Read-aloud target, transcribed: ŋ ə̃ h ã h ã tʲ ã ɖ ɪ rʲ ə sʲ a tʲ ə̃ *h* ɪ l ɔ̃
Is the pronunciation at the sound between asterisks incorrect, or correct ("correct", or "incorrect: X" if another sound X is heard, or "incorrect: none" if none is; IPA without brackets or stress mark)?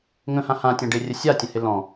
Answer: correct